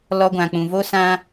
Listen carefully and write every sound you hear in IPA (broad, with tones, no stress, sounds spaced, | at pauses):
l ɔ˧ ɡʷ ã˨ k͡p ũ˨ v o˦ s ã˧